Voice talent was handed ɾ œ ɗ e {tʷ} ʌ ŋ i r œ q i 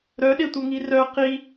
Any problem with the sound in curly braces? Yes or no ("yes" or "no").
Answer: no